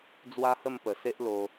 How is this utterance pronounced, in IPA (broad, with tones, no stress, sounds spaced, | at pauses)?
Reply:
d͡z w a˦ h ə˥˧ m p ə˨˩ s e˦ ʔ l o˧